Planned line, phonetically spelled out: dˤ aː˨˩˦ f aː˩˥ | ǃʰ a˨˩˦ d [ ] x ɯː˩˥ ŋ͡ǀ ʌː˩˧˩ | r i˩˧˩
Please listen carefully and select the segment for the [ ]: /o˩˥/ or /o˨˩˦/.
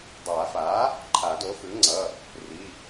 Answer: o˩˥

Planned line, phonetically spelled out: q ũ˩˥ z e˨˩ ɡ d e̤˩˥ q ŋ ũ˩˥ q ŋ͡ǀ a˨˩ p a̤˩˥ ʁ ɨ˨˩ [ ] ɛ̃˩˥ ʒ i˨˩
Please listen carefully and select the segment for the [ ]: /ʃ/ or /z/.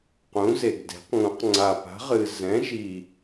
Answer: z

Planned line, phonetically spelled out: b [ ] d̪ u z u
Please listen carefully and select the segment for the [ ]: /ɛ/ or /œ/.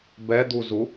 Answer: ɛ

